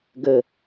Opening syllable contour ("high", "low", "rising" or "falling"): low